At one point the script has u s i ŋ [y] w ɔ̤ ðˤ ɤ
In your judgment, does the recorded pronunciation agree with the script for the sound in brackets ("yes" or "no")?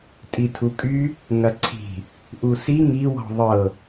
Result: no